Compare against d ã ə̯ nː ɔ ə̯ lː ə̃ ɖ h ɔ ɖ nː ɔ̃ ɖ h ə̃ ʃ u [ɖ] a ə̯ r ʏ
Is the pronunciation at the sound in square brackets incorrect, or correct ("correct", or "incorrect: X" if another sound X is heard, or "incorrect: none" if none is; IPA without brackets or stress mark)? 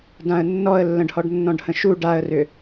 correct